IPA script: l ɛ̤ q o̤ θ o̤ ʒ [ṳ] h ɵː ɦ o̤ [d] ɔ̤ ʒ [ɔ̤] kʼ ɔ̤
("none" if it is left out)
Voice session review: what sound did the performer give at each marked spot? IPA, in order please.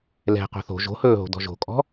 o̤, d, o̤

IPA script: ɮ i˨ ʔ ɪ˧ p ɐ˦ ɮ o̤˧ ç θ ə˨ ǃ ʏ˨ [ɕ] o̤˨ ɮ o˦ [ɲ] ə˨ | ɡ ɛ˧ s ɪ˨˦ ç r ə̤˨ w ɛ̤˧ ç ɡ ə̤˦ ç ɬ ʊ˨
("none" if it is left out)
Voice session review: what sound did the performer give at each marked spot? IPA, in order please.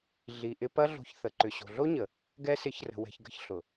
ɕ, ɲ

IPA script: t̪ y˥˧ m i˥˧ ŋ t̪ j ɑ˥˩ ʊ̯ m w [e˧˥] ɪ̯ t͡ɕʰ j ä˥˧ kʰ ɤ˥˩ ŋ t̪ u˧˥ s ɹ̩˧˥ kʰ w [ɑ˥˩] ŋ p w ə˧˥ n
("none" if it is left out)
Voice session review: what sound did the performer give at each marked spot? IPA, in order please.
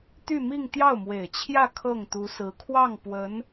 e˨˩, ɑ˥˩

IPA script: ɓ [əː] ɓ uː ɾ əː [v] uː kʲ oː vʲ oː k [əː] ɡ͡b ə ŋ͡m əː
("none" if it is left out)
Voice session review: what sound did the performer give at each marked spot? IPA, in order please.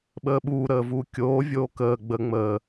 əː, v, əː

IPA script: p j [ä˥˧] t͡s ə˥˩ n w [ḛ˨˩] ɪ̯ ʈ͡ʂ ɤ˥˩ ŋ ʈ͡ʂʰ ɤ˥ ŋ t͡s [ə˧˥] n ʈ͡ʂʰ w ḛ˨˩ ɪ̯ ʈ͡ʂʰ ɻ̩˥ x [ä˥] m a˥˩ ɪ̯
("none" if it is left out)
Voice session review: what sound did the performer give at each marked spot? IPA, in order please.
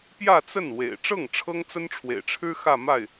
ä˥˧, ḛ˨˩, ə˥, ä˥˧

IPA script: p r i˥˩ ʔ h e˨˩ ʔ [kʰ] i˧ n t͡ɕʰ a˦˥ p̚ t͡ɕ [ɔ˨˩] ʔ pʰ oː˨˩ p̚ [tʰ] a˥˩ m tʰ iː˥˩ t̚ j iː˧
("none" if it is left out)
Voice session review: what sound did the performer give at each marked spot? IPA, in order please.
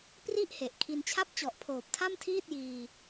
kʰ, ɔ˨˩, tʰ

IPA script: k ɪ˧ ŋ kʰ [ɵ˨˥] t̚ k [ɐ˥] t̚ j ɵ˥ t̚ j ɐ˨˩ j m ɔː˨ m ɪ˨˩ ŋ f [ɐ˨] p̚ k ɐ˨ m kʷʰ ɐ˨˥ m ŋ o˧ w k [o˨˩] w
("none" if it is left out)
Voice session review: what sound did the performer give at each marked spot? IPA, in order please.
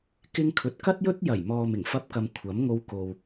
ɵ˨, ɐ˥, ɐ˧, o˨

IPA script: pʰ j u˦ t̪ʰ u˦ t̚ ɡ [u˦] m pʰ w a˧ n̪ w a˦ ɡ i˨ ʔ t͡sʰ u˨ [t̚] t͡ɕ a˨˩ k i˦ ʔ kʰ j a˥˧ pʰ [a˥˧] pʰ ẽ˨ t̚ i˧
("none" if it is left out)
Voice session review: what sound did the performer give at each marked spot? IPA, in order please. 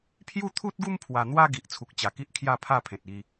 u˦, k̚, a˥˧

